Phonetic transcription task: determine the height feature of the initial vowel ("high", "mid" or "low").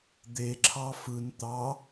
mid